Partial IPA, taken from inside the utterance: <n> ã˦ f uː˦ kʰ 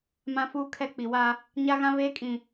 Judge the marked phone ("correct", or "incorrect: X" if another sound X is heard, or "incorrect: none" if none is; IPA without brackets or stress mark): incorrect: m